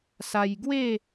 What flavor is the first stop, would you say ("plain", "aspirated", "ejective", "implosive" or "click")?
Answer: plain